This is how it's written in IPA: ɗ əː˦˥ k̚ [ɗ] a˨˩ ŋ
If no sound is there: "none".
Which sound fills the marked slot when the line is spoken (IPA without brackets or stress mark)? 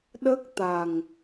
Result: t̪